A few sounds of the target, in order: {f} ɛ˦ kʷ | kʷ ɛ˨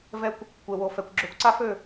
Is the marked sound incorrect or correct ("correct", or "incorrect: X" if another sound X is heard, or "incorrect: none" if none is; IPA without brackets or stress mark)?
incorrect: v